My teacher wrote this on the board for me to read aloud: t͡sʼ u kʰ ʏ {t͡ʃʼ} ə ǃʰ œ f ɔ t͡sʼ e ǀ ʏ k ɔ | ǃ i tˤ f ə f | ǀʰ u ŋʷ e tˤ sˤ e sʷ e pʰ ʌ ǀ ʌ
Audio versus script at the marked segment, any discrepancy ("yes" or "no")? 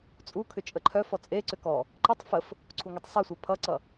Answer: no